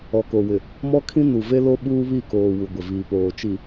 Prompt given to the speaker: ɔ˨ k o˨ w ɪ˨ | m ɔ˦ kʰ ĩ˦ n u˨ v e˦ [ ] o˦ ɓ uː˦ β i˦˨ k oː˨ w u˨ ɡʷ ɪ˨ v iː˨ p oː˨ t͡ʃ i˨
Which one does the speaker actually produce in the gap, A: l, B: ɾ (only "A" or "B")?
A